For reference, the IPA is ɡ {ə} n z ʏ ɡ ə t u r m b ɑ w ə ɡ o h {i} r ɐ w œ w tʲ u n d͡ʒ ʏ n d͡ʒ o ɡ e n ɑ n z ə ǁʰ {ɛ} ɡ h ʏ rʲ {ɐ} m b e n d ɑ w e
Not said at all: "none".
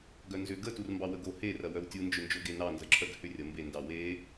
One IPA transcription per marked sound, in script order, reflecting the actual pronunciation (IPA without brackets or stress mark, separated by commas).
œ, e, œ, ɐ